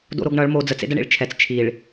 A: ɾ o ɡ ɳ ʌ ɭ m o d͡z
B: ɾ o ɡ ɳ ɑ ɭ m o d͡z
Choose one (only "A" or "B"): A